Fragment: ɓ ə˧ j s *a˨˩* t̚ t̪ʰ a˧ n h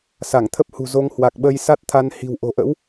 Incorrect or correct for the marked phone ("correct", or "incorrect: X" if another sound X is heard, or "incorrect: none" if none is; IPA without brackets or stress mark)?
incorrect: a˦˥